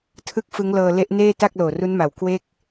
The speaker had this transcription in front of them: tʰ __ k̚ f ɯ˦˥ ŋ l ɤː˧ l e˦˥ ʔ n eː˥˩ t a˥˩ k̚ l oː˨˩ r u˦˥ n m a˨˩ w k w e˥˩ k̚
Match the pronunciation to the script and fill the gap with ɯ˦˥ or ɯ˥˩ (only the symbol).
ɯ˥˩